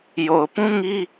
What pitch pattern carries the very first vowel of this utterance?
low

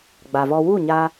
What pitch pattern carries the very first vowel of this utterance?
low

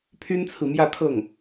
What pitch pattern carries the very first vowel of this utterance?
high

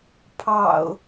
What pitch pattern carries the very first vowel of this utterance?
low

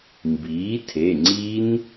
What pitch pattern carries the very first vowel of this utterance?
rising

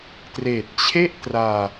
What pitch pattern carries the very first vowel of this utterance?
low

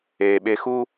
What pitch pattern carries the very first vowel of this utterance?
low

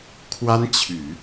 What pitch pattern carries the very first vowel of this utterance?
high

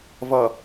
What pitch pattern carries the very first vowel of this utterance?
low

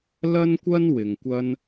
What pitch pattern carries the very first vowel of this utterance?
high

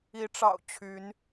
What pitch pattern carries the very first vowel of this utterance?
rising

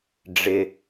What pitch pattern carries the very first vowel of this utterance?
low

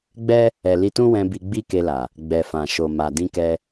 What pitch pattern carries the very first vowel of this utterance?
high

